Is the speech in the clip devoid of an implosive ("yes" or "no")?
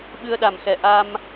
no